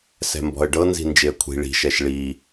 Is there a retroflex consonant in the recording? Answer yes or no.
yes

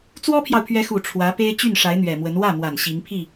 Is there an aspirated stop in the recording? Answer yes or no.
yes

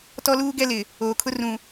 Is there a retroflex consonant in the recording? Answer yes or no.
no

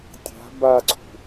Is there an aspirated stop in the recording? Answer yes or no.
yes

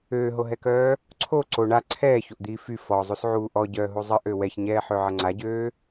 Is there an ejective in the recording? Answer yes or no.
no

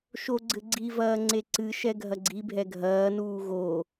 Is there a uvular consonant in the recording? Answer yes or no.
no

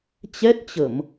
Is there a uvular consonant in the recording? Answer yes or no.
no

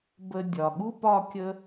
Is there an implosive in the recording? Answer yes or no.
yes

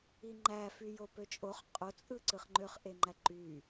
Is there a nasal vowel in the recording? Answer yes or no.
no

